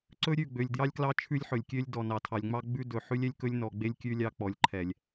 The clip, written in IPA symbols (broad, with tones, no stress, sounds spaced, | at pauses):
ǀ ɵ˦ ɾʲ ʉ˦˨ ɡ͡b ø˨ lʲ d j ɑ˦ lʲ k l ɑ˦ t͡ʃʰ ʉ˦ lʲ ħ ɵ˨ lʲ kʲ ø˦ lʲ d ɔ˨ n ɑ˨ tʰ ɑ˨ lʲ ŋ͡m ɑ˦ ɡ͡b ʉ˦ d ɵ˨ ħ ʉ˦ lʲ ɛ˦ lʲ k ɵ˦ lʲ n ɔ˨ ɡ͡b e˦ lʲ kʲ ʉ˦ lʲ ɑ˦ k͡p ɔ˨ lʲ ǃʰ ɛ˨ lʲ